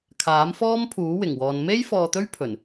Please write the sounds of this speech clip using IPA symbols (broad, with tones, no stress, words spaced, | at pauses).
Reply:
kʰaː˨˥mfɔː˥mpʰuː˨˥ wɪ˨˩ŋwɔː˨n me˥j fɔː˧t̪ɵ˥ɥpʰɵ˨˩n